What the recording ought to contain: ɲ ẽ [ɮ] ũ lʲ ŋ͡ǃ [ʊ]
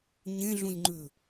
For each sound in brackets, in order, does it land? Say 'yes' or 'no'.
yes, no

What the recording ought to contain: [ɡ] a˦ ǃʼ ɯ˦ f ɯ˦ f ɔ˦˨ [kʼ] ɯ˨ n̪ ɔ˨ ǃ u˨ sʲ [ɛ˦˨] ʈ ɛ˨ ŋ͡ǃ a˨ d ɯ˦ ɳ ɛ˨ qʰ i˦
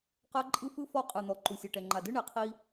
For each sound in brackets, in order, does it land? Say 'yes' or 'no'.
no, no, no

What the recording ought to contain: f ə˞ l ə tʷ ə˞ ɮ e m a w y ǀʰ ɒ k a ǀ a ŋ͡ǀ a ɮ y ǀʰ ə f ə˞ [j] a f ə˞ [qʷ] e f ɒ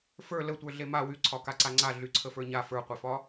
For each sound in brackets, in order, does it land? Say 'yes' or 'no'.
no, yes

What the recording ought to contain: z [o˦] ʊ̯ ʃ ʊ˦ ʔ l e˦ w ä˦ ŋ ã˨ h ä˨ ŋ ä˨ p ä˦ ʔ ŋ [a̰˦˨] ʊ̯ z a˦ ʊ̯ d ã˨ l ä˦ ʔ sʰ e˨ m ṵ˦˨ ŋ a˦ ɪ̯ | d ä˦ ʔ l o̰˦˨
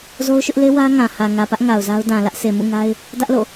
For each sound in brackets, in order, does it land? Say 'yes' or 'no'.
yes, no

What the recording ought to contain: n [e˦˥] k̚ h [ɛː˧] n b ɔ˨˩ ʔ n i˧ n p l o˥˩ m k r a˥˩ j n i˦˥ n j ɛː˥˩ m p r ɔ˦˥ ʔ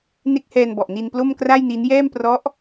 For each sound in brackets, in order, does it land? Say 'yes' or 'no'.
yes, yes

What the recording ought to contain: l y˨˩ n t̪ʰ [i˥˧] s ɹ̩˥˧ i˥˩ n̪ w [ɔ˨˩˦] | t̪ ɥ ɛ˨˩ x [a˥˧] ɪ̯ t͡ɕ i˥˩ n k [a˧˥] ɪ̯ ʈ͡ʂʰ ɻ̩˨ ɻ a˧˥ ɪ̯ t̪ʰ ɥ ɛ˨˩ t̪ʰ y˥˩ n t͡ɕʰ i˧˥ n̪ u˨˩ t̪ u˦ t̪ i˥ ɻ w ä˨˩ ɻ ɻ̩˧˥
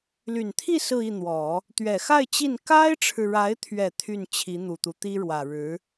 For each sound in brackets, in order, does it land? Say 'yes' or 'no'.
yes, yes, yes, no

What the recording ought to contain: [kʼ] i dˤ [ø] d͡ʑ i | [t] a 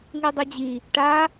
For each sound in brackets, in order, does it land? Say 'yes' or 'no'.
no, no, no

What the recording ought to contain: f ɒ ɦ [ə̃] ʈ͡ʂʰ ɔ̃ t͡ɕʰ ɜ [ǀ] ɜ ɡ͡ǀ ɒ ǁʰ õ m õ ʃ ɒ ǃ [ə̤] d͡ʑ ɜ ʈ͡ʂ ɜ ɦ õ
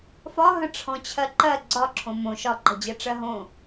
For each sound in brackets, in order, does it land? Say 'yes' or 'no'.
yes, no, yes

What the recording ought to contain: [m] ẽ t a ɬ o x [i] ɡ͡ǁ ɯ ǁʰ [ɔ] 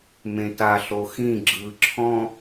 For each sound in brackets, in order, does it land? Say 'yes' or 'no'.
yes, no, no

